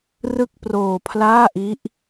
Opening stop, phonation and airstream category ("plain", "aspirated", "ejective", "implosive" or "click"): plain